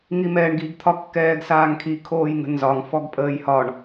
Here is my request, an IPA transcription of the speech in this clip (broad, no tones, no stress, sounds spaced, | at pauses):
ŋ i m ɛː ɳ ɡ i ɡ t̪ʰ ɒ kː ɛː ɡ s aː ŋ kʰ i kʰ oː j ŋ ə̤ n z ɒ ŋ f ɔ ɡ pʼ əː j h ɒ ɳ